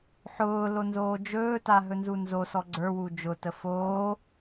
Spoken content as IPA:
ħ ʊː l o n z oː d͡ʒ ɵː t a ɦ ɵ n z u n z o s ɔ ɡ͡ǀ ə˞ w u d͡ʒ ʊ t ə f oː

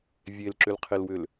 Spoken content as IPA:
vʲ e l ǁ ʏ l qʰ e l w ʏ l

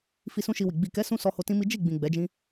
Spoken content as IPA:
f i˧ s ũ˦ ʃ i˧ w i˨ ɡ͡b i˨ k ɛ˨˦ s ũ˧ s ɔ˧ h o˧ t ĩ˦ m i˦ d͡ʒ i˦˨ ɡ͡b ĩ˨ ɡ͡b ɛ˨˦ d͡ʒ ĩ˦

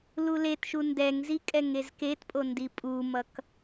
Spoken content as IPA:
l u l e t ʃ u n d ɛ ŋ z i kʼ ɛ ŋ e z k e t pʼ o n d i pʼ u m ʌ k

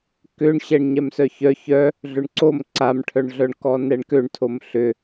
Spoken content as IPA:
k ʏ ɳ ɕ ɛ ɳ ɲ ɛ m s œ ç œ ç œ | ɮ ʏ ɳ ǀ o m ǀ a m ʈʰ œ ɳ ɮ œ ɳ k ɔ n ɛ ɳ k ø ɳ tʰ o m ɬ ʏ

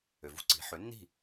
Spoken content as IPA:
ø˩ v ṳ˥ ǀ i̤˩˥ ħ ø˩˥ nː i̤˥˩

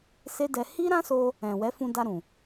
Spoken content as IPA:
s e˦ d ɛ˧ h i˦ ɾ ã˦ s o˧ | ɛ̃˨ w ɛ˨˦ f ũ˧ d a˧ ɾ ũ˨

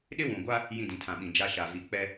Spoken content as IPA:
ɗ ɪ˦ w ũ˨ ɡʷ a˦ | j ĩ˦˨ d ĩ˨ tʰ ã˨ ɓ ĩ˨ d͡ʒ a˦ ʃ a˨ v i˨ k͡p ɛ˦

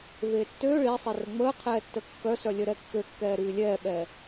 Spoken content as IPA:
v eː tː øː ɭ i sˤ i r ə ŋ͡m əː qʰ ɛː tː ə kː œ s œ lʲ œ ɾ ɛ kː ø kː ɛː ɾ yː lʲ ɛː ɓ ɛː

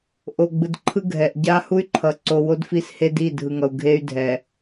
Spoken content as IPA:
ʔ o˨ ɡ͡b ɯ˨ d ǃʰ ɯ˦ ɡʱ ɛ˨ ʔ ɟ a˦ h u˦ y̯ ǃʰ ʌ˨ ǀ o˨ w o˦ d f i˦ s h e˦ d i˦˨ dʱ ɯ˨ ŋ ʌ˨ u̯ ɡʱ e˦ y̯ dʱ ɛ˨

